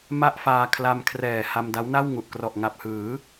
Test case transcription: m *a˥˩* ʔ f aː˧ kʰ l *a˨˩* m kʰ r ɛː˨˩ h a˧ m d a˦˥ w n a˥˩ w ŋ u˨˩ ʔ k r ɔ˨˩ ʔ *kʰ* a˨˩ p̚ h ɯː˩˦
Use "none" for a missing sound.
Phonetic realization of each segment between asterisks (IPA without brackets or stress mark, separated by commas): a˥˩, a˧, ŋ